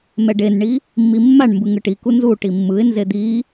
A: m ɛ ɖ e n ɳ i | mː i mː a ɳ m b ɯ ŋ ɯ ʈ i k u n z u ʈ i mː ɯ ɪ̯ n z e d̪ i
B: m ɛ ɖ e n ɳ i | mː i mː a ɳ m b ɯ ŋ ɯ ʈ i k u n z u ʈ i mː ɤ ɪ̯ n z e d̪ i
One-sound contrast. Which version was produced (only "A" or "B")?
A